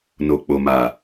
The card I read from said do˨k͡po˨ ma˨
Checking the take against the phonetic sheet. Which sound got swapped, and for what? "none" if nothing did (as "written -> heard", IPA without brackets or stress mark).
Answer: d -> n